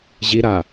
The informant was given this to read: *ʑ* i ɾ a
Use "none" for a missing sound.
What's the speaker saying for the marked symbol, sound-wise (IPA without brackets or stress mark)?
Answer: ʑ